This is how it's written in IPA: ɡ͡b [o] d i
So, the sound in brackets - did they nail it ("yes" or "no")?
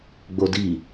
yes